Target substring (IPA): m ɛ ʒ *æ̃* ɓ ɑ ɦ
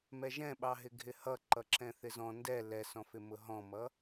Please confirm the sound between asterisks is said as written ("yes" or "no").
no